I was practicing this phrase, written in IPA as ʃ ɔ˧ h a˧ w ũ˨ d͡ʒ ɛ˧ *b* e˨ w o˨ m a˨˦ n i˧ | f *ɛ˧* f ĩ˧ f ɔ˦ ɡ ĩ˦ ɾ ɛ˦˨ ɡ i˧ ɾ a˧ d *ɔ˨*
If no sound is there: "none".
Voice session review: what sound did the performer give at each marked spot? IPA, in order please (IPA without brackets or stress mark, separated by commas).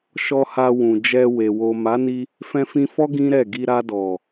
w, ɛ̃˧, ɔ˨